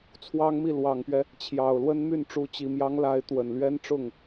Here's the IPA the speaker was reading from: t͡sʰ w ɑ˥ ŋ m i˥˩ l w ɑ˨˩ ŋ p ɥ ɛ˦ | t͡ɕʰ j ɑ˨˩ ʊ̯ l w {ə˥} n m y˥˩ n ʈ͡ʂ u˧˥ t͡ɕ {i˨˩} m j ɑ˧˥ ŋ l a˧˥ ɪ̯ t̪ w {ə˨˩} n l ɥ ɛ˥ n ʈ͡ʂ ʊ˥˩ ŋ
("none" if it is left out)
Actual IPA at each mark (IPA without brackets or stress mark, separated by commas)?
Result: ə˥, i˨˩, ə˨˩